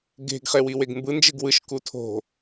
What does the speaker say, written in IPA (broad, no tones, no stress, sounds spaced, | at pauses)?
ɡ e̤ ɡ χ e w i w e ɡ m b ɯ n d͡ʒ ɯ ɡ w ɯ ʃ k u tʰ o̤